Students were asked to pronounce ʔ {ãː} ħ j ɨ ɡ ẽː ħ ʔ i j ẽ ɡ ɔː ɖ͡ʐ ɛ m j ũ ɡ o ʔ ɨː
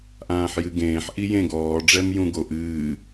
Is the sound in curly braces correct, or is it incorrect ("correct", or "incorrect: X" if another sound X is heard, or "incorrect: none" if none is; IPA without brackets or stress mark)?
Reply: correct